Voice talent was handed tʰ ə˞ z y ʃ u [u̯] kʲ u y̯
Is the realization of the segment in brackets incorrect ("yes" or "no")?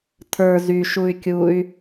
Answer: yes